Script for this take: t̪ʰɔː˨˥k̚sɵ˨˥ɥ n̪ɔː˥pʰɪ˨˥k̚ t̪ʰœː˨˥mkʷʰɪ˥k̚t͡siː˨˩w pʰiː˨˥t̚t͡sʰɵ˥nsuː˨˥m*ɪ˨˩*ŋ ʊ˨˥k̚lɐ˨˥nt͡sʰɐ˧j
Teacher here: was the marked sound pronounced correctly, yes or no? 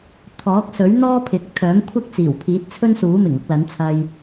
yes